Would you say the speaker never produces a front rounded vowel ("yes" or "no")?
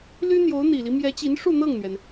no